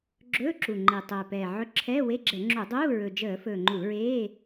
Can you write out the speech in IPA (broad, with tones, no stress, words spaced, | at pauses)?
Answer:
ɡ͡ǁɵː˧˥˧ǁu˨˩ŋ͡ǃe˨˩ tˤɵː˨˩pɛː˨˩ʕɵ˧˥˧ǁʰɛː˧˥˧ we˧˥˧ɡ͡ǁɛ˧˩˧ŋ͡ǁu˧˩˧dˤuː˧˥˧ ɹɵ˨˩d͡ʒəː˧˩˧fɵː˨˩ ŋ͡ǃu˧˩˧ɹeː˧˥˧